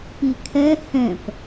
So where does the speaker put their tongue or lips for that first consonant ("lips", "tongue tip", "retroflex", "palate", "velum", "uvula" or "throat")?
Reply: lips